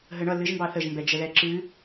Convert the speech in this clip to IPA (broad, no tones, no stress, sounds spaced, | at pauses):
ɦ ə ɳ ʌ l ɨ ʒ m b ɑ θ ə ʒ m b ɛ d͡ʒ ə ð ɛ ǁ ɨ